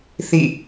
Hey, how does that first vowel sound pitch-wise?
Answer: falling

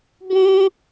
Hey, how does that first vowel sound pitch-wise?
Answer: high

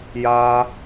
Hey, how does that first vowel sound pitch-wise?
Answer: high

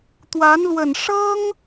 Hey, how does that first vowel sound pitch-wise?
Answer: rising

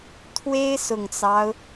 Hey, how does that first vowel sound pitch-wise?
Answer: high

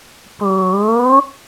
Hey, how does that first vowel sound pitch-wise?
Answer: rising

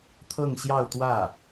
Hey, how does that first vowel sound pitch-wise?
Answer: falling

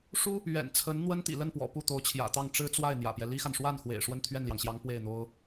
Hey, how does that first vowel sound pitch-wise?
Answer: high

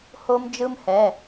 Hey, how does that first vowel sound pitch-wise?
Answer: high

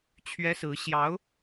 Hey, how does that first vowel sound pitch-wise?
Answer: high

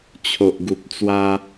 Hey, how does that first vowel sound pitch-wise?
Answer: low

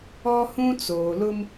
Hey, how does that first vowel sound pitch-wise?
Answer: high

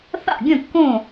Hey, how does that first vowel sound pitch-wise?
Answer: falling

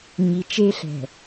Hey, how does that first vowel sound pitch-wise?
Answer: low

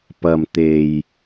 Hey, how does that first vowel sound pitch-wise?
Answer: low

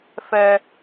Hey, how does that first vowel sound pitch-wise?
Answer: high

